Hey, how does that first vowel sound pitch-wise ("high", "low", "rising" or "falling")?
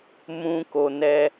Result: high